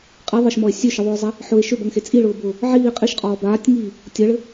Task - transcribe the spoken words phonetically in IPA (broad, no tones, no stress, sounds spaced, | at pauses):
qʼ i ðˤ ɘ ʃ m ɔ e̯ sʲ ø ʃ ɘ ðˤ ʊː zˤ ɛ | ħ ʊ e̯ ʃ ø b ʌ ŋ x e t͡sʼ i ɭ ʊː b ʊː | ʕ iː qʼ i ʃ qʼ ɔː b aː tʲ ŋ iː | tʲ ʌ ɭ ɘ